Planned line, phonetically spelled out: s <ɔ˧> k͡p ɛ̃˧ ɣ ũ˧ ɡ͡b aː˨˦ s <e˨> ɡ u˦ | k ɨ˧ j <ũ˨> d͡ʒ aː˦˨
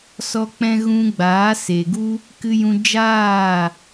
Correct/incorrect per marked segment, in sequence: correct, correct, incorrect: ũ˧

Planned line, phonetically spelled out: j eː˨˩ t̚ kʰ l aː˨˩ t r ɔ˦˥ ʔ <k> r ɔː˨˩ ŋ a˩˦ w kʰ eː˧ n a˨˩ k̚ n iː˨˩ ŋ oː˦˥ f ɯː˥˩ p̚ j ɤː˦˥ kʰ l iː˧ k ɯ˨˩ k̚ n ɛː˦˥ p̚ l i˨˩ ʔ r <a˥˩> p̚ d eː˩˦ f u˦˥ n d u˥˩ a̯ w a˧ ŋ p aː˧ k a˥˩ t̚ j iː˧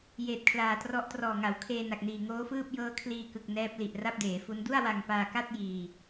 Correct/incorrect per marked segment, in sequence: incorrect: t, correct

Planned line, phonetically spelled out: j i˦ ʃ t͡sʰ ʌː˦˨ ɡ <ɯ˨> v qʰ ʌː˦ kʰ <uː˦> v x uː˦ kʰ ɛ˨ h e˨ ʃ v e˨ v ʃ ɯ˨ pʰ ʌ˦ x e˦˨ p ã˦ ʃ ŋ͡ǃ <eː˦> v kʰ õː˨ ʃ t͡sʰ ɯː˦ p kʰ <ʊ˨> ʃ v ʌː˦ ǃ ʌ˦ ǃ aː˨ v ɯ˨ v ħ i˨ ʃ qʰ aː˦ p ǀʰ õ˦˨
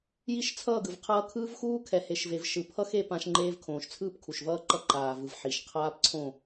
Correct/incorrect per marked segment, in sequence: correct, incorrect: ɯː˦, correct, incorrect: u˨

